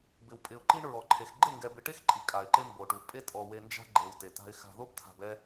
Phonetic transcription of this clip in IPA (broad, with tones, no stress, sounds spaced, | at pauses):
b ɪ˨ w pʼ ɪ˨ ʊ̯ ǃ i˦ ɳ ɹ ɔ˨ ǃʰ e˨ x ɡ͡ǃ ɪ˦˨ ŋ ɡ ɛ˨ b ɪ˨ ʈ e˦ x ǃʼ i˨ kʼ a˨ ɪ̯ ǃ e˦ m b o˨ ʈ u˨ pʼ e˦ tʼ ɔ˨ w e˨ n d͡ʒ a̤˦ ɡ͡ǃ e˨ w t e˨ t a̤˦ ɪ̯ x a̤˦ ð o˦ b tʰ a̤˨ b ɛ˦